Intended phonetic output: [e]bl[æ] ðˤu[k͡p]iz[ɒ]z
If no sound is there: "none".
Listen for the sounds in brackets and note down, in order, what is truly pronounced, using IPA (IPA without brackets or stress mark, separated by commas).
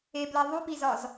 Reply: e, æ, p, ɒ